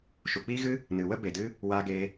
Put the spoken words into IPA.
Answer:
ʃ u˨ k͡p iː˦ ɣ ɨ˦ | n ɨ˨ w ə˦ b e˨ d ɨ˦ | w aː˧ ɡ eː˧

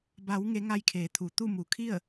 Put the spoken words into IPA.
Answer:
b a˩˧ w ŋ e˩˧ ŋ a˧ j kʰ eː˩˧ t̪ʰ u˩ t̪ u˥˨ m u˩˧ kʰ i˥˨ ə̯

